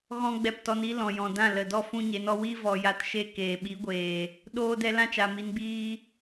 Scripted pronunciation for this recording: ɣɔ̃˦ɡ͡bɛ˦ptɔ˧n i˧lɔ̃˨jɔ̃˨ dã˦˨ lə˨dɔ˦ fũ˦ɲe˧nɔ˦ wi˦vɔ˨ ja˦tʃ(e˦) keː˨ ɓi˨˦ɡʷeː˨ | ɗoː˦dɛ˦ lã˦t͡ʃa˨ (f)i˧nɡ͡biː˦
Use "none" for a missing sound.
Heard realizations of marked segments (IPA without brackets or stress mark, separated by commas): e˦, m